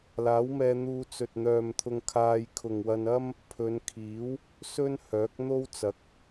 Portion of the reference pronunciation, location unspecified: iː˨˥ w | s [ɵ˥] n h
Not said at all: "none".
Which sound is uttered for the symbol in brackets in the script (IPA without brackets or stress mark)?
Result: ɵ˥